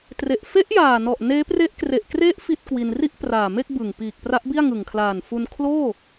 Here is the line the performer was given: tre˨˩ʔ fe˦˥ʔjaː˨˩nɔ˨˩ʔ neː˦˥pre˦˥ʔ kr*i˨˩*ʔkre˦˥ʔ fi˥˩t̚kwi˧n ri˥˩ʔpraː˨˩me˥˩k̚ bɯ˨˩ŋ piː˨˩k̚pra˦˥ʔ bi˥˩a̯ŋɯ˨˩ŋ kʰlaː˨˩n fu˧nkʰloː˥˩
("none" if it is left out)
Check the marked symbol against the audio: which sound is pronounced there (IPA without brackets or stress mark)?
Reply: e˨˩